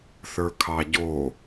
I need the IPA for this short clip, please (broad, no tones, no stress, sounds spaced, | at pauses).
θ ə˞ kʰ ɑ ɟ o